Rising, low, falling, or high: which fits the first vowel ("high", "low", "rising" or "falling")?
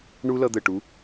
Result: high